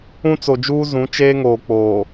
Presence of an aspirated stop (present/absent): absent